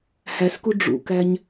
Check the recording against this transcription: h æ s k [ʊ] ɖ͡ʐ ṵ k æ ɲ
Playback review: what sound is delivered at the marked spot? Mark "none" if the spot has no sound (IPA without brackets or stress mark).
u